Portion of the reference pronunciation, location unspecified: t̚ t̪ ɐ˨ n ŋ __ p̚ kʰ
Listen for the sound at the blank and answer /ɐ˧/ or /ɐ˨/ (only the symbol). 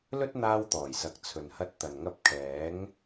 ɐ˧